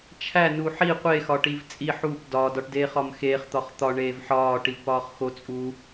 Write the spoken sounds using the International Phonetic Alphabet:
t͡ʃʰæ nuħi qʷe xɒʈivt͡sʼi ħup dɒ dɒʈdeːχɒmxeːχ t̪ɒχt̪ɒ ɳeːvħɒː ʈivpɒːχxo t͡sʼu

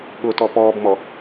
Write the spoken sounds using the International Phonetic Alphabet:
ɠʊtɔ pɔːbmɔ

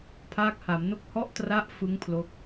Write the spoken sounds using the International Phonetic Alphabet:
pʰaː˦˥k̚ha˩˦mno˥˩k̚ hɔ˦˥ʔtra˦˥ʔ fɯ˦˥ŋ pʰlo˦˥k̚

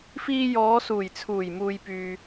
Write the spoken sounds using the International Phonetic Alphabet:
fiː˧jɔː˨˧suː˨˩j t͡sʰuː˨˩jmuː˨jpyː˨

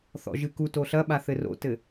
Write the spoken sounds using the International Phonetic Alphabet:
θɔ̰ʒɨkuto ɬɐɓa θɘro̰tɘ

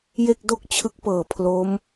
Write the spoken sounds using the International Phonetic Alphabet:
je˥˩k̚ do˥˩k̚t͡ɕʰɯ˦˥k̚pɤː˨˩ pʰlo˦˥m

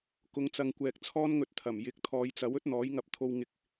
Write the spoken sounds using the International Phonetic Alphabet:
kʊ˨˧ŋt͡sɐ˨ŋkʷɛː˨k̚ t͡sʰɔː˥nŋɵ˧t̚t̪ʰɐ˨˩m jɪ˨˥k̚t̪ʰɔː˨˧jt͡sɐ˨˥w ɵ˥t̚n̪ɔː˨˥jŋɐ˧p̚t̪ʰo˧w ŋɪ˧k̚

